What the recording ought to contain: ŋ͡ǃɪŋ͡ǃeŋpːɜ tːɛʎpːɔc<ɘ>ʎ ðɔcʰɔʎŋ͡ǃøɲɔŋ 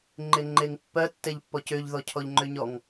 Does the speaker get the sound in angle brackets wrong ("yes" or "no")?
yes